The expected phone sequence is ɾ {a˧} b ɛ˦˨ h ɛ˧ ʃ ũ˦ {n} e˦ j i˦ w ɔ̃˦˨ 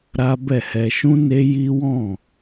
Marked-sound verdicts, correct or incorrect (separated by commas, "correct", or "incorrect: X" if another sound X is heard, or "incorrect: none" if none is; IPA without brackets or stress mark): incorrect: a˦, correct